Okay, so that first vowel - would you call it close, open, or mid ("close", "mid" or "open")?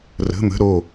mid